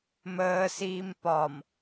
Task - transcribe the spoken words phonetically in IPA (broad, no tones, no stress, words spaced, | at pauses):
məː siːmpɒm